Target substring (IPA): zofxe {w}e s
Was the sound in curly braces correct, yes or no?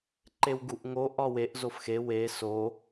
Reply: yes